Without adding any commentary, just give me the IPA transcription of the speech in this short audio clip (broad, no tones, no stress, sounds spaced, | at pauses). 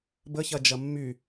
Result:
b ə ç ɐ d͡ʒ ɐ mː y